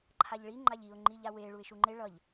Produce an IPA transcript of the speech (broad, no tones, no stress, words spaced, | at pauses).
ǃʰaʎɭi ŋ͡ǃaʎiʊ̯ ŋ͡ǃiʎawe ɭuɪ̯ʃuŋ͡ǃe ɭʌʎ